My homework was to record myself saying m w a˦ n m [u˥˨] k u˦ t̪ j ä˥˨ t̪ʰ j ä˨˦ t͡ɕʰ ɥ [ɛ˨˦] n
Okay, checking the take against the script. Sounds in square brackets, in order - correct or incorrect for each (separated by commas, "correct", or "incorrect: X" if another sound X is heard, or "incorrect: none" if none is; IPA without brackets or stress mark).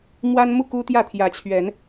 correct, correct